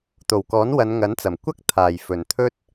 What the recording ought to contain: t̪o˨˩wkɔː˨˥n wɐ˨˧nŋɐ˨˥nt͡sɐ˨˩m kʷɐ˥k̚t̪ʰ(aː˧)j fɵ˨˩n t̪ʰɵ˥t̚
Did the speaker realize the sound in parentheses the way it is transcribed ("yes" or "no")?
no